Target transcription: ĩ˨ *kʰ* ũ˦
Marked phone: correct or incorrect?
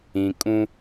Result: incorrect